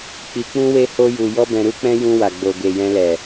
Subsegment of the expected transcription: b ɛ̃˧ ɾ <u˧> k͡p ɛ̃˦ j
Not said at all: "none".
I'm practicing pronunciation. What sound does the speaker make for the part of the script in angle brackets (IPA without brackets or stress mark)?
u˦